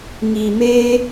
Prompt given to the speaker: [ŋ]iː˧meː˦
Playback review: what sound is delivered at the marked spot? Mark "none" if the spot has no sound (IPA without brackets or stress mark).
ŋ